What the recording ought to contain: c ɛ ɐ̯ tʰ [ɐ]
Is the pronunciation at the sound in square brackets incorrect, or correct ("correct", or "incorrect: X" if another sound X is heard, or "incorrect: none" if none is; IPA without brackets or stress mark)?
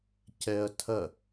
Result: correct